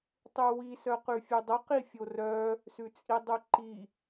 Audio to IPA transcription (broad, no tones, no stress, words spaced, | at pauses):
tˤʉwi sœqʉfʲʉdˤə qifʲorœ | sʉt͡sʼidˤʉǃi